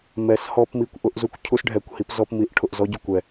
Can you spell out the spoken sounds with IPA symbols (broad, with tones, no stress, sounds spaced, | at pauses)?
m ɛ˩˥ s h ɔ˧ p m i˧ kʷ ʔ ʊ˦˥ ʔ z u˦˥ kʷ cʰ u˦˥ s ɖʱ ɛ˨˩˦ kʷ h i˩˥ p z ɔ˧ p m i˩˥ ʔ ʈʰ ʊ˧ ʔ z ɔ˦˥ ɟ ʊ˧ kʷ ɛ˧